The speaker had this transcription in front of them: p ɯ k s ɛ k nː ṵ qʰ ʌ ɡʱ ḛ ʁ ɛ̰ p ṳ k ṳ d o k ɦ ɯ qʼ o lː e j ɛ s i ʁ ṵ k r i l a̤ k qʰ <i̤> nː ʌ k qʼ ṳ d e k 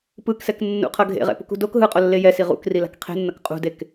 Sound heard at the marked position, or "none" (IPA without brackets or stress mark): e̤